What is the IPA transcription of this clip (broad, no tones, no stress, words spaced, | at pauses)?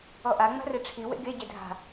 ɔʔa ŋ͡ma̤reʈ͡ʂʰi wḛɡe ɟedʱa̤